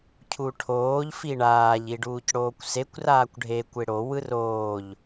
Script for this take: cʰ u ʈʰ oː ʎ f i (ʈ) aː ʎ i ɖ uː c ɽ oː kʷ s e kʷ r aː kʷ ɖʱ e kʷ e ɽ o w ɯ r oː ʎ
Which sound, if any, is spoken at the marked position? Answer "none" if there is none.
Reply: ɳ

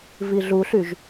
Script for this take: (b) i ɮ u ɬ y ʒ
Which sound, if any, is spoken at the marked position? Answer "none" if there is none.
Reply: v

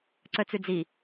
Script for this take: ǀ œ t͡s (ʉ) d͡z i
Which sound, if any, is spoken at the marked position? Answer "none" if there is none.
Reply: ʉ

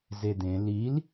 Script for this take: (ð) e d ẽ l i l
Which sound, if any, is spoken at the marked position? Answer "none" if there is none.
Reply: z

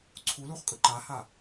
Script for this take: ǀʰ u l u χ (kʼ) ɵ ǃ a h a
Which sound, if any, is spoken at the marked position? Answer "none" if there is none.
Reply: kʼ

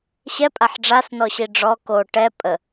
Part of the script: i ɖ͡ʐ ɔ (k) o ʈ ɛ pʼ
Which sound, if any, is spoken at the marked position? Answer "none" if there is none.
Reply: k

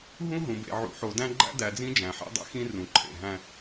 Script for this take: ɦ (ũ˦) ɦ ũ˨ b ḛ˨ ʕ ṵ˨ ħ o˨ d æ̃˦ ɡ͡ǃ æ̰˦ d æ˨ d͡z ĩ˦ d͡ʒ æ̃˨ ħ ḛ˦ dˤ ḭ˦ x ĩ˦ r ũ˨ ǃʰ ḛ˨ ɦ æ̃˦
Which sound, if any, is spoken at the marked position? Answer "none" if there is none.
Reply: ũ˦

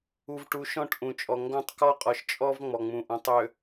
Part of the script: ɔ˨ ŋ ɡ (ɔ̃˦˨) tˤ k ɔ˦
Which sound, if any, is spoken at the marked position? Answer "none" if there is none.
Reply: ɔ̃˦˨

